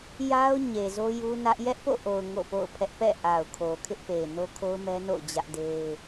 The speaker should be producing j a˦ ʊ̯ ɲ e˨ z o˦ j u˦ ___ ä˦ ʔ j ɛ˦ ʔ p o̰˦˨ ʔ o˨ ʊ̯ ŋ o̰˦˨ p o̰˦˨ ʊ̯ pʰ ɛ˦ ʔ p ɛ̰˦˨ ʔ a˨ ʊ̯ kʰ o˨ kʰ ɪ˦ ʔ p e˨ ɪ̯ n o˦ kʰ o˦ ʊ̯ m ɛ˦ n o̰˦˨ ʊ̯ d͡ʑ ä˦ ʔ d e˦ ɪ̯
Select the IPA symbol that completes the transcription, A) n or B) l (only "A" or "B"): A